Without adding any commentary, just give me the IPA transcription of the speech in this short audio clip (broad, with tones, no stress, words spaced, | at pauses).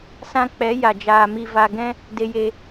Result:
sã˧k͡pɛ˨˦ ja˨d͡ʒaː˨ mi˨va˨ ɡɛ̃˧ | de˧je˧